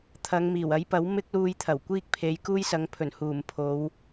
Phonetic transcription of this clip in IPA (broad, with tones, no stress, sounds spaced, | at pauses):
t̪ʰ ɐ˨˧ ŋ m iː˨˩ w ɐ˨˥ j p ɐ˨˥ w m ɪ˥ k̚ l uː˧ j t̪ʰ ɐ˨˩ w kʷ iː˥ k̚ pʰ e˨˧ j k uː˥ j s ɐ˨˧ ŋ pʰ ɵ˨˩ n h uː˨˩ m pʰ o˨˧ w